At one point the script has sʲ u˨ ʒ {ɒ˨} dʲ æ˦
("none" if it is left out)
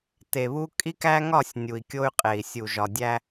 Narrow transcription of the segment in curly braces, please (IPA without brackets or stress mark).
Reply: ɒ˨